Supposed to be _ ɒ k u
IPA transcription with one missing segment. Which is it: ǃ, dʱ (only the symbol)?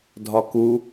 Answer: dʱ